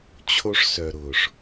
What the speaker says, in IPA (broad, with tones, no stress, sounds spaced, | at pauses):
t͡ɕʰ o˧ ʂ s œ˨ ɾ ʊː˨ ʂ